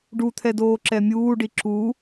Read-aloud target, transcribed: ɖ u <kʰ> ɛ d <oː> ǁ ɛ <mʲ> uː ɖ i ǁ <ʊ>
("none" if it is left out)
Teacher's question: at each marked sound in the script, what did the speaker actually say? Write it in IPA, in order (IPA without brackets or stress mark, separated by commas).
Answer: t̪ʰ, oː, mʲ, u